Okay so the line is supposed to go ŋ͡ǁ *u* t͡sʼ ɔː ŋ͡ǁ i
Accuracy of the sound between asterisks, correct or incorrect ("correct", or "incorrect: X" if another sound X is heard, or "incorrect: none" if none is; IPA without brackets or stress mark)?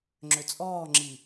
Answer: incorrect: ø